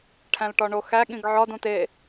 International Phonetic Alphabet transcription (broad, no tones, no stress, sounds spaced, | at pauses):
ʈʰ æ̃ l ʈ ɒ ɳ o x æ ɠ ĩ ɡ ʕ ɒ d ũ t e